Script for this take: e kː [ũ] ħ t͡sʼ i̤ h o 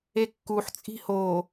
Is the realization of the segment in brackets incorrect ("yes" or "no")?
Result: yes